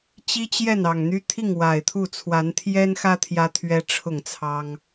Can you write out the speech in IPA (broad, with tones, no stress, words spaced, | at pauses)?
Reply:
t͡ɕi˦t͡ɕjɛ˥˨nɑ˨˩ŋn̪y˦ t̪ʰi˥˨ŋwa˨˩ɪ̯t̪ʰu˥˨ t͡sʰwa˨˦nt̪ʰjɛ˦nxä˦ t̪ʰjä˦t̪ʰɥɛ˦ ʈ͡ʂʰʊ˥˨ŋt͡sʰɑ˦ŋ